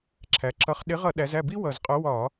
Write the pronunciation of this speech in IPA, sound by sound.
ǁʰæ˩˧ǁʌ˨˥χ ɗɪ˨˥ʁʌ˧˩˧ɗæ˩˧zæ˥˩ bi˦ wʌ˨˩zqʼʊ˨˥ wɒ˧˩˧

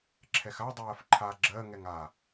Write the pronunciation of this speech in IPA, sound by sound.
ǁʰɛxa dˤɜːfǃʰa ɡ͡ǁɜ ŋɛŋa

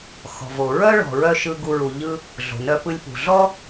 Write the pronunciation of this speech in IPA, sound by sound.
xɔ̤˨vo˨ ɹœ˦ɭɔ̤˨ɹœ˧ ʃɯ˦ɡu˦ɹu˧ ʎɯ˦ | ɮo̤˨nœ˧pɯ˧lʲpṳ˨ ɮɔ˦

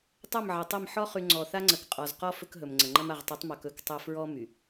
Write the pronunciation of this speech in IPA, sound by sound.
tˤɐ˦˨mʕə˨tˤɐ˦˨m ħɔ˦χy˨ ŋ͡ǀɔ˨θa˦ŋ͡ǀə˨k qʼɔ˨zqɔ˦ fɵ˦kɦɵ˨mŋ͡ǀə˨ŋ͡ǃɐ˦m a˨ʁtˤɵ˨˦tˤmɔ˨k ɵ˦ktˤɐ˦ fɹɔ˦ my˨

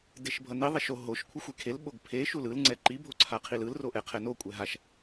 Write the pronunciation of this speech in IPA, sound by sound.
deʃbʱʌni ðˤɛʃo ɦoʃ kʷʰʌxʷekʰel ɓoɡpʰe ʃulɯl ŋ͡ǀɛǃi bʱoǀʰaqʰilɯl roʔɛqʰɛno kʷʼɛɦaʃ

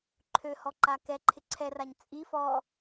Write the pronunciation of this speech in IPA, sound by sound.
ǃʰøhɔǃa kɛǃʰɪ ǀʰɛraɲ t͡sʼi fɔ

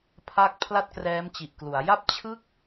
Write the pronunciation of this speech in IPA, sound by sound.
pʰa˦˥k̚ pʰla˥˩t̚krɛː˦˥mt͡ɕi˨˩ʔklu˩˦a̯ ja˦˥p̚t͡ɕʰɯ˦˥k̚

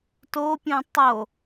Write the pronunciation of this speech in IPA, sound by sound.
topʲũ tˤo

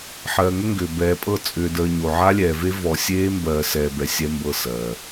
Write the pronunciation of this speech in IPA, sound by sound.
ħɜː˨ŋʏ˦ŋɡʏː˨ bɛː˨pʼɤ˦˨ t͡sʼʏː˨dəː˨ ɲo˨ʕa˦lʲɛː˨ve˦ vɔ˨sʲeː˦mbɜː˨ sɛː˨bɛ˨ sʲɛ˦mbɤ˦˨sɜː˨

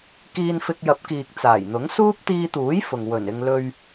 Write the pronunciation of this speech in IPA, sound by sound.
kiː˧nfɪ˧k̚jɐ˨˥p̚kiː˨k̚ t͡saː˨˩jn̪ʊ˨˥ŋ suː˥p̚t̪iː˧t̪uː˨˥j fʊ˨ŋ wɵ˨˩nɪ˧ŋ lɵ˧ɥ

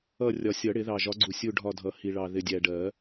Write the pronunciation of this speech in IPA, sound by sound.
ʌ˦˨ rʲɒ˨sʲʌ˨˩˦ ɽɪ˨˩˦ðɑ˨ʒɒ˨˥ɡ͡ǀu˨ sʲu˦˨ɖʱɒ˦˨dʱʌ˨˩˦ hi˨ɭɑ˨ ðɪ˨ dʲæ˨ɖɜ˨˩˦

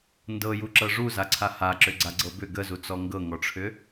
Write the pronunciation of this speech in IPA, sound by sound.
ndɤjuǁɤ ʐuzaǀʰa haǁʏɡ͡ǀaɡ͡ǀɤ bʏ ɡəzut͡sɔ ŋɡɤŋɔʈ͡ʂʰʏ

